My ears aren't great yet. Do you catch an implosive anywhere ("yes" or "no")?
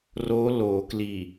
no